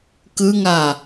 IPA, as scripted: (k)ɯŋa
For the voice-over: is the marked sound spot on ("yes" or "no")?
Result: yes